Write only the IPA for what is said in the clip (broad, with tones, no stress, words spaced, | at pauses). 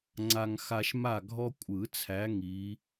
ŋ͡ǀa˦ŋxa˦ʃ ma˦˨ɡʱɔ˦kʷʼɯ˨˩˦t͡sʰæ˨˦ ŋi˨˦